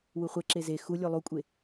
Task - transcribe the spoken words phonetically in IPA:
w u χʷ ɛ ǁ e z e x u lʲ o lˠ u kʷʼ e

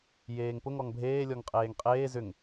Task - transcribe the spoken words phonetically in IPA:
j eː ŋ p ʊ ŋ ɔ ŋ bʱ eː lʲ ɔ ŋ qʼ eː ŋ qʼ eː z ʏ ŋ

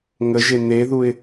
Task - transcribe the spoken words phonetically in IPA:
ŋ ə ʒ e n̪ e ð u ɪ̯

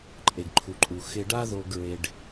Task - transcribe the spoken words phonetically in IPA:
ǃʼ e˩ ɡ ǃʰ u˩ ǃʼ u˩ x ɪ˧ ɖ a˥ ð o˧ ɡ ɹ e˧ ɖ

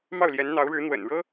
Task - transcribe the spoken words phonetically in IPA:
m ɑ˥˩ ʊ̯ l j ɛ˧˥ n n̪ ɑ˧˥ ʊ̯ ɻ ɻ̩˧˥ n̪ w ə̰˨˩ n ɻ ɤ˥

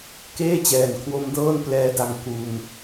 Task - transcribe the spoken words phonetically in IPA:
k eː˥˩ t͡ɕ ɛː˨˩ n kʰ w o˦˥ m d ɤː˥˩ n p l ɛː˦˥ d a˧ ŋ k u˧ n

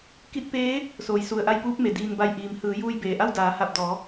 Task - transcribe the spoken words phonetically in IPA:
k i˧˥ t̚ p eː˧˥ | s oː˩ j s u˩ ə̯ ʔ a˧ j p uː˧˥ p̚ m e˩˧ d iː˧ n b a˧˩ j ʔ iː˩ m h ɯː˩˧ j uː˧ j b eː˩ ʔ a˥˨ w d aː˩˧ h a˧˩ p̚ d ɔː˩˧

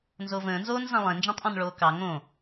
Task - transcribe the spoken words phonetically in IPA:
n z o v ə̃ː n z oː n z ɑ̃ lˠ ẽ n d͡ʒ ɔ̃ tˤ ʔ ɔ̃ n ɭ oː k ɑ ŋ õ

